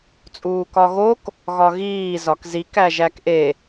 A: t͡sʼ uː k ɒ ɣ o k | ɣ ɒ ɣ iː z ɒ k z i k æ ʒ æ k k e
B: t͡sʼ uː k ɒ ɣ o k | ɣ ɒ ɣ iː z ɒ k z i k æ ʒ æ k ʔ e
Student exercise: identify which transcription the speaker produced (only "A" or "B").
B